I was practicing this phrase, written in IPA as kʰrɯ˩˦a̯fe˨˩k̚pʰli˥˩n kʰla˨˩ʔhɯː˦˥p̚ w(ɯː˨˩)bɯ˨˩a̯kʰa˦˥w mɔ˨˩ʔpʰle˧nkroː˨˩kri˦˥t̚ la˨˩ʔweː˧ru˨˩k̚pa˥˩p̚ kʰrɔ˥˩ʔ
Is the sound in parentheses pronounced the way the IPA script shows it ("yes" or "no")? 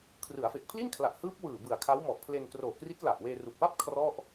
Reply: yes